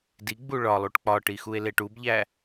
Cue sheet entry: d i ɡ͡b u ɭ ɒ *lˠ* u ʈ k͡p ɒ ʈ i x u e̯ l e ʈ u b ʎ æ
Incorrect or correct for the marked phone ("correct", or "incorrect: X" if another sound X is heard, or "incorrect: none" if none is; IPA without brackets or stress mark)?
correct